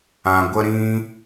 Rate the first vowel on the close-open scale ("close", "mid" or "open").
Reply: open